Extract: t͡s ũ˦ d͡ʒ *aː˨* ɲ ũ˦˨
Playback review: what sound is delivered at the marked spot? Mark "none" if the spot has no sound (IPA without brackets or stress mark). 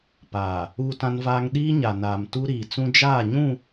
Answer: aː˦˨